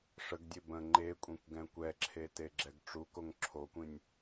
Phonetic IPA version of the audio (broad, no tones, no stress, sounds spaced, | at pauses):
ʂ ə ɡ dʲ e b ə̃ ŋ͡ǃ e kʷʼ ĩ kʷ ɡ ɛ̃ kʷ ɛ ǁʰ e t e ɡ͡ǁ ɛ ɡ ʈ͡ʂ u k o ŋ ǁʰ o kʷ ĩ nʲ